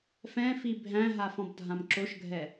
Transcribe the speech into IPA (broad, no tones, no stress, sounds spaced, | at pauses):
f ɛ̃ f i bʱ æ̃ ɦ a f ɔ̃ b dʱ ã m ǁ o ʃ ɡʱ ɛ